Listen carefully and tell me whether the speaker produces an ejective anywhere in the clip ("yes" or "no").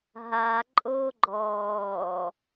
yes